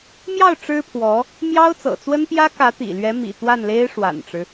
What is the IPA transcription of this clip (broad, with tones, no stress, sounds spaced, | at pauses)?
m j ɑ˥˩ ʊ̯ ʈ͡ʂ ɻ̩˥ pʰ w ɔ˧˥ | m j ɑ˥ ʊ̯ t͡s ɤ̰˨˩ t͡s w ə˥ n p j ä˥ k ä˧˥ t̪ ḭ˨˩ l ɥ ɛ˧˥ m ḭ˨˩ t̪ w a˥˩ n l e˥ ɪ̯ ʂ w a̰˨˩ n ʈ͡ʂ ɻ̩˦